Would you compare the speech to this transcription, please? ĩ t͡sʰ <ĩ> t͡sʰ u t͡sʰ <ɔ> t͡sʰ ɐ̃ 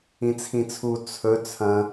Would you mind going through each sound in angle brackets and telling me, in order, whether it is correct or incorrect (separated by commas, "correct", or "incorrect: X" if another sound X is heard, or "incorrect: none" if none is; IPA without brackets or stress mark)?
correct, incorrect: ɵ